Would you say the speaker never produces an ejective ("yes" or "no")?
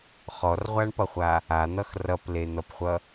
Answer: yes